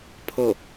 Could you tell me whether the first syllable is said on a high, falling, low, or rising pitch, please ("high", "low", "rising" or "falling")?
falling